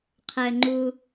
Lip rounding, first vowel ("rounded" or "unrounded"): unrounded